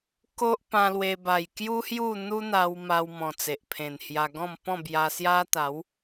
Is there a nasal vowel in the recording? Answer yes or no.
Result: yes